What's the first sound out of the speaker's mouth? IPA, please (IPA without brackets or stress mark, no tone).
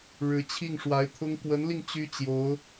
ɻ